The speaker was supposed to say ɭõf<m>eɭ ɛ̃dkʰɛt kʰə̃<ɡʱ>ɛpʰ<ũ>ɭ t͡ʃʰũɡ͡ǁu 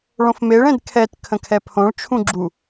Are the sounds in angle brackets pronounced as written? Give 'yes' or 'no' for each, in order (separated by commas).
yes, no, no